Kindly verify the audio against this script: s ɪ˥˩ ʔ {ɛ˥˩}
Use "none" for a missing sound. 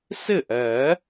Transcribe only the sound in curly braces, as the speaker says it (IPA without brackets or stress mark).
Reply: ɛ˨˩˦